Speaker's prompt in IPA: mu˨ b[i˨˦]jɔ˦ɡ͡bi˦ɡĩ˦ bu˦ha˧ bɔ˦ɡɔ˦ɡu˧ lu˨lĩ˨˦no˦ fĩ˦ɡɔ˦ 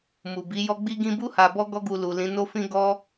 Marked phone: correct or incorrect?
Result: correct